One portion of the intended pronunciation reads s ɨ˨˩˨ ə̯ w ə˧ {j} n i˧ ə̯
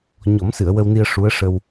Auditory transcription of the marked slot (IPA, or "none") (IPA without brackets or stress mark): w